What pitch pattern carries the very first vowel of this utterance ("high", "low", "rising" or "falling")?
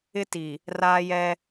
high